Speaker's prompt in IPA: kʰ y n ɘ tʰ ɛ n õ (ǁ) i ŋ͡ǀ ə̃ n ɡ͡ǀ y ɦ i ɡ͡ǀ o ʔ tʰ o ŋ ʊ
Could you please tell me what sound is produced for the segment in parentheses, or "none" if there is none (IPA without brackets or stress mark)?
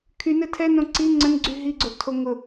ǀ